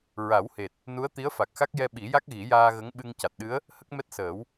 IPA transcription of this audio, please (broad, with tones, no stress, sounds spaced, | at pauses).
ɹ a˨˩˦ w h e˨˩ t̚ | n u˧˥ ə̯ t̪ i˧˥ ə̯ f a˨˩ k̚ x a˦˥ k̚ j ɛ˧ ɓ i˨˩˦ j a˦˥ k̚ ɣ i˨˩˦ j aː˧ ɣ ə˧˥ ŋ ɓ ɨ˧ ŋ c a˨˩ t̚ ɗ ɨ˧˥ ə̯ | h ə˦˥ k̚ m ɛ˦˥ t̚ s əː˨˩˦ w